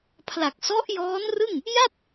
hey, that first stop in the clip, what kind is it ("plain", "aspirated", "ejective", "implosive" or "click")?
aspirated